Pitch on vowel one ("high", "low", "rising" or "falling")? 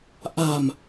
low